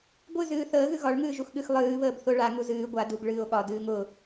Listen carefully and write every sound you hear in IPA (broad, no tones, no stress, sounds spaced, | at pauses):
ɡʷ ɨ z ɨː θ əː ɣ ɨ ɣ ɒ ɭ ŋ ɨː ʒ u x ɠ ɨ x lˠ ɨː β əː b θ ʊ ɭ a ŋ u z ɨː ɡʷ a d u ɡ ɭ ɨː o̯ ɠ ɒ d ɨː ŋ ʊ